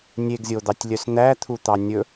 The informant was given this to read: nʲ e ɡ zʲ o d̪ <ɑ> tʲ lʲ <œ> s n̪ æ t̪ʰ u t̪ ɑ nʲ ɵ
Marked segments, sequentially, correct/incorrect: correct, correct

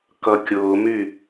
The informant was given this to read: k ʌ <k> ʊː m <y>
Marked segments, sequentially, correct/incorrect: incorrect: kʲ, correct

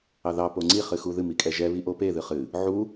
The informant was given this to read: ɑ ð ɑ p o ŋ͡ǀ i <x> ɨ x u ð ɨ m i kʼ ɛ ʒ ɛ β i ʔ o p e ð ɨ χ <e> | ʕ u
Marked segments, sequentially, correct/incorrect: incorrect: χ, incorrect: ɨ

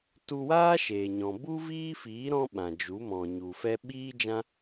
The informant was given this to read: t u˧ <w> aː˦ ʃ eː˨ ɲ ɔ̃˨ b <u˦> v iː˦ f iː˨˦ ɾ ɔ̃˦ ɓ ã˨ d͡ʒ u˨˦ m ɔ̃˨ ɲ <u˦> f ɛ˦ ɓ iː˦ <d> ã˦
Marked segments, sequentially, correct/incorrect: correct, correct, incorrect: u˨, incorrect: d͡ʒ

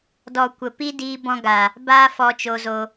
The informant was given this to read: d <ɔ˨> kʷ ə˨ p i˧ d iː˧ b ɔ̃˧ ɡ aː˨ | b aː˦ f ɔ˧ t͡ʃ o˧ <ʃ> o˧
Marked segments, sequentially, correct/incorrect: correct, incorrect: z

